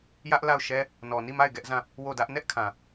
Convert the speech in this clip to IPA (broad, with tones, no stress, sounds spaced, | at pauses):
j ä˦ ʔ l a˦˨ ʊ̯ ʃ ɛ˦ | n ɔ˨ n i˦˨ m a˦˨ ɪ̯ ɡ ɛ˦ ʔ z ã˦˨ | w o˦˨ d ä˦ ʔ n ɛ˦ ʔ kʰ ã˨